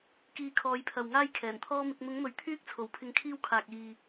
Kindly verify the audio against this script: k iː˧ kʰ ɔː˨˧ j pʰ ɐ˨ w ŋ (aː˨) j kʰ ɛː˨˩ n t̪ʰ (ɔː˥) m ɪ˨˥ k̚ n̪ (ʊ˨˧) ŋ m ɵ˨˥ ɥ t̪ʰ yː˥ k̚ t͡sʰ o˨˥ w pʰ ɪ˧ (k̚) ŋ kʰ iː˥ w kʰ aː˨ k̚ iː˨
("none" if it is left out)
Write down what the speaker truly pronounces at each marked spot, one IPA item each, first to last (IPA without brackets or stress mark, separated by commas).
aː˥, ɔː˥, ʊ˨˧, none